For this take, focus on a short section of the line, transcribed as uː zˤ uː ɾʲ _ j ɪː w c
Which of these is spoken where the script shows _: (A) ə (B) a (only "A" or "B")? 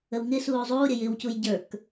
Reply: A